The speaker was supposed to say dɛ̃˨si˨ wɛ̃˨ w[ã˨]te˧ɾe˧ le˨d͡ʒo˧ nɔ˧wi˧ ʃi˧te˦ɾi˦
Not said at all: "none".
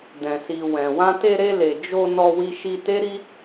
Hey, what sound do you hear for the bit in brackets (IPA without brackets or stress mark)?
ã˧